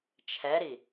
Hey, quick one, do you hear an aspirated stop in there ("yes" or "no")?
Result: yes